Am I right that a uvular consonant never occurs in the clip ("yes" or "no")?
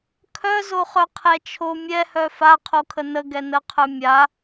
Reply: no